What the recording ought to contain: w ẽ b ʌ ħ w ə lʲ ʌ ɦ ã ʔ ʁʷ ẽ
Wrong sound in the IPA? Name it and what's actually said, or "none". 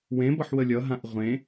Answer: none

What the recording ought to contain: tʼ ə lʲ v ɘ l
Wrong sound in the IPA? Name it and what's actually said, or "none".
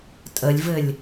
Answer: l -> lʲ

